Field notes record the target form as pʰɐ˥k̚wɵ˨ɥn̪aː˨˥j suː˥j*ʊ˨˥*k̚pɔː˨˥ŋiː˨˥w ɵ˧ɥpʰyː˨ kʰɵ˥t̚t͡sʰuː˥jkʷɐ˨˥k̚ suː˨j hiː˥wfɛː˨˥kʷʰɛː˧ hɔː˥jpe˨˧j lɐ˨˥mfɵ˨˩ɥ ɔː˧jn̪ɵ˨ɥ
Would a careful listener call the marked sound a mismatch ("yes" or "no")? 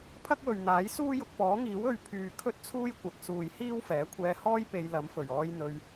yes